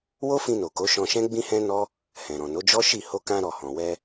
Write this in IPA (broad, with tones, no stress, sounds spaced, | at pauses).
w o˦ f ĩ˧ n o˨ k o˨˦ ʃ ɔ̃˧ ʃ ɛ̃˦ ɡ͡b ĩ˦ h ɛ̃˦ n ɔ˦ | h ɛ̃˨ ɾ ɔ̃˨ n o˨˦ d͡ʒ ɔ˦ ʃ i˦˨ h o˧ k ã˧ ɾ ɔ˨ h ɔ̃˨ w ɛ˧